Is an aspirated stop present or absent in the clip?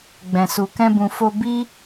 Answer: absent